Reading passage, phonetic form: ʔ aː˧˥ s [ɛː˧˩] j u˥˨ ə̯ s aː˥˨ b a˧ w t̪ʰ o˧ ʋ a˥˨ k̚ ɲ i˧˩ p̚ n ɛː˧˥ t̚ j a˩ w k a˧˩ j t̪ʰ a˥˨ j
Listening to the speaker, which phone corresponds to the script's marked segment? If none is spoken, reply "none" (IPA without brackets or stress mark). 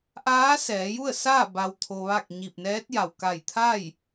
ɛː˩˧